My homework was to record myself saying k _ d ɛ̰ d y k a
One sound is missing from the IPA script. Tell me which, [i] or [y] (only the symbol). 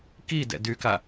i